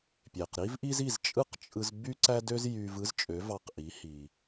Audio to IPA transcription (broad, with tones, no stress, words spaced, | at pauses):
pʲe˩q ɾi˥vʔi˥z i˥˩zt͡ʃʼɯ˥qt͡ʃʼɯ˧z by˥ǀæ˥dø˥z jy˧vɯ˥zt͡ʃʼø˩˥ vɑ˧qʔi˩˥ hi˩